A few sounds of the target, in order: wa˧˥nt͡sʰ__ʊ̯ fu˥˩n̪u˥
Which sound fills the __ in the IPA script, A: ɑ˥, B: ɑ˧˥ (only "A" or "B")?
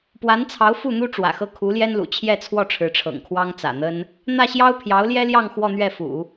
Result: B